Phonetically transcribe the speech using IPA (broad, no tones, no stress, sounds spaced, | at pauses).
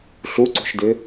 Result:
ɬ u ǀ ṳ ʃ d ɪ